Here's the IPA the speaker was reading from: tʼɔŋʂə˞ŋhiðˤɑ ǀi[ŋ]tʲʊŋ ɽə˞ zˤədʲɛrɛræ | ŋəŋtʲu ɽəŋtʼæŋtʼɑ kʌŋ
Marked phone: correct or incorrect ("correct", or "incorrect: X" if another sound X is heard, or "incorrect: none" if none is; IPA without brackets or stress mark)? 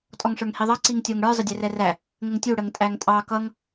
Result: correct